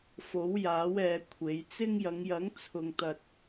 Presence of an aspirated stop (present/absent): present